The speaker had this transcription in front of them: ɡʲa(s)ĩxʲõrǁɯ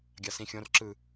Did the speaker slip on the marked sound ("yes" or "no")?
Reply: no